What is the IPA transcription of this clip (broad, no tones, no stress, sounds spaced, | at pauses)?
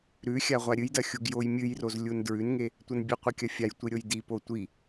ɾ ʉ xʲ a ʁʷ a ɾʲ ɨ j d ɐ xʲ u ɡ j o j mʲ ɨ j r o z lʲ u n d ɹ ʉ n ŋ e | tʷ ɐ n bʲ ɨ qʷ ɨ kʲ ɐ fʲ a j tʷ i ɾʲ o j d i p o tʷ i